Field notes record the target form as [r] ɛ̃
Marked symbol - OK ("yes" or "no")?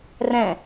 yes